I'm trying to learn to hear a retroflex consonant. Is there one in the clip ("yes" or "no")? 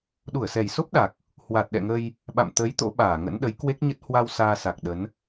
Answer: no